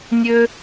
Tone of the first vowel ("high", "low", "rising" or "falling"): high